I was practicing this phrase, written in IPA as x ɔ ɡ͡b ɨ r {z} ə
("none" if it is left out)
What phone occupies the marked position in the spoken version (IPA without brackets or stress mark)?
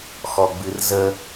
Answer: z